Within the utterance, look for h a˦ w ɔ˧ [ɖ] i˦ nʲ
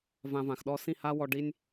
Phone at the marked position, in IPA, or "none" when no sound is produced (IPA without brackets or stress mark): ɖ